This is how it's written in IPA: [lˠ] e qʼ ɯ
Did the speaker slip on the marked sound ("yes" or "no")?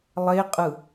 no